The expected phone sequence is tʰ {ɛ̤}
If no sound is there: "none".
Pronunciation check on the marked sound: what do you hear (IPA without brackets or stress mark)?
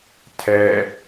ɛ